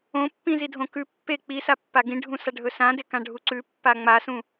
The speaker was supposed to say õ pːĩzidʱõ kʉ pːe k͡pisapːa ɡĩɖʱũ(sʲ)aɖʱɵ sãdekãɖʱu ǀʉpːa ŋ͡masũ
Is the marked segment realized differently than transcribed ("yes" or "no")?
yes